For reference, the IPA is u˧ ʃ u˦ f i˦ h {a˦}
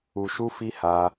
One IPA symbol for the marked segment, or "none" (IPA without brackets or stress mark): a˦